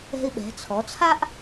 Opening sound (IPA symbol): ɛ̤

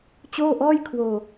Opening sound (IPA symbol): t͡ɕ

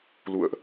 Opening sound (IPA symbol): l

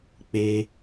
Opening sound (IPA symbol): k͡p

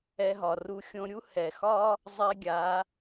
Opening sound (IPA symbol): ɛ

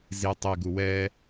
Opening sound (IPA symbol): z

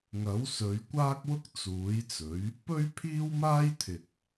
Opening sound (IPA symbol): ŋ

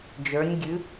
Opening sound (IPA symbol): d͡ʒ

